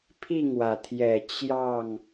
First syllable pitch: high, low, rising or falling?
falling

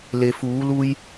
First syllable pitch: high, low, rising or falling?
low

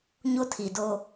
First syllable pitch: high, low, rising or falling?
high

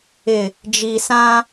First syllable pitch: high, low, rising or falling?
low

